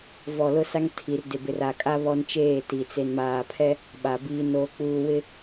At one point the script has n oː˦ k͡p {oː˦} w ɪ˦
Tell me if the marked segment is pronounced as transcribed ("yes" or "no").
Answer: no